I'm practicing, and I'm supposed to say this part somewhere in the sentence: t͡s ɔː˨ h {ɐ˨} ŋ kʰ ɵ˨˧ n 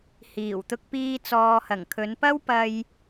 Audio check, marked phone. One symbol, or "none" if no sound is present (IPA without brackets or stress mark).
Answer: ɐ˨˩